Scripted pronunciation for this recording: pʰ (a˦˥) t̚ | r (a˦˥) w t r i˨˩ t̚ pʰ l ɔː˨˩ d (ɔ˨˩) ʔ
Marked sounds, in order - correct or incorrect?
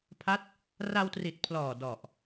correct, incorrect: a˧, correct

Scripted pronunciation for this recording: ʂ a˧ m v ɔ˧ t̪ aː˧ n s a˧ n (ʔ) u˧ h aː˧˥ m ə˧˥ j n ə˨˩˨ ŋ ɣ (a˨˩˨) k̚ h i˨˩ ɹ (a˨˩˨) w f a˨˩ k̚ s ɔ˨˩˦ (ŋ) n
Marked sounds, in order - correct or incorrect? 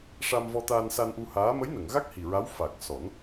correct, incorrect: a˦˥, incorrect: a˧˥, incorrect: none

